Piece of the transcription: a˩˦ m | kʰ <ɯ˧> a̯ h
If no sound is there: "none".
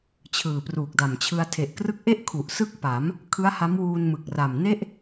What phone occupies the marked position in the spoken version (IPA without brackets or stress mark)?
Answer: ɯ˦˥